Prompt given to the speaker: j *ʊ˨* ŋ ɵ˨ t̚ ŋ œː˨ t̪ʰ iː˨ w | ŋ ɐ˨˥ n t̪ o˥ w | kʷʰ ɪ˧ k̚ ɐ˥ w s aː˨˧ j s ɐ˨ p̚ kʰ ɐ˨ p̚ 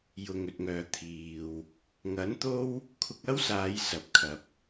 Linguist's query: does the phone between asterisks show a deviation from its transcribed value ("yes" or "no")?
no